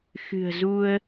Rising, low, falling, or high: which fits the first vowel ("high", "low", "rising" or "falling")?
low